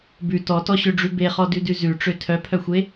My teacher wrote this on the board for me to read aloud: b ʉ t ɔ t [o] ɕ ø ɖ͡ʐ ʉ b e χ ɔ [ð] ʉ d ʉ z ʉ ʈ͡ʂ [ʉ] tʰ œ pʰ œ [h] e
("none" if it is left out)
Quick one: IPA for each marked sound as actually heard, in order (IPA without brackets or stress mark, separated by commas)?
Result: ɔ, d, ø, xʷ